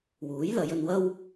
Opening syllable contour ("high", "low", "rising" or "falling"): rising